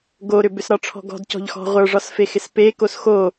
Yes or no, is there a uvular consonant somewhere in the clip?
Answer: yes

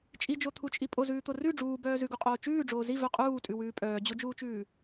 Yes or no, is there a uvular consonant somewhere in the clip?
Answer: yes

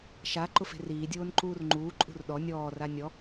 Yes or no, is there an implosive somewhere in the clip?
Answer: yes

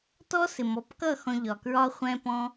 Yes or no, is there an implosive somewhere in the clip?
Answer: no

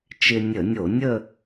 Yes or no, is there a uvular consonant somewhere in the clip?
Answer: no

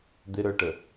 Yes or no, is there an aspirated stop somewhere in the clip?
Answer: no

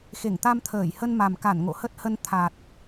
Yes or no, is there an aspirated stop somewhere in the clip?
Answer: yes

